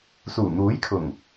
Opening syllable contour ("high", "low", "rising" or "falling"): low